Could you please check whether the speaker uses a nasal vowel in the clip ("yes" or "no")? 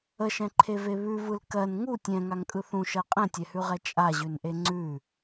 yes